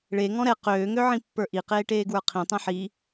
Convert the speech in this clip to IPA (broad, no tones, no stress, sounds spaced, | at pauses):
ɭ e ŋ ɔ̃ ɾ ɛ q øː ŋ ø ʕ ĩ pː ə˞ ʔ i q eː ʈ eː ɡ w ə˞ qʰ ĩ tˤ ɛ̃ ħ i